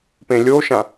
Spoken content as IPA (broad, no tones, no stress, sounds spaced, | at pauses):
p ẽ lʲ o ʃ ã